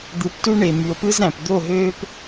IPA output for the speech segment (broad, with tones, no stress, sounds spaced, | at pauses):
d̪ ɯ˨ p t u˦ ɳ e˨ m y˨ o̯ p ɯ˦ z ɾ æ̃˨ p d̪ o˦˨ ɦ øː˦ p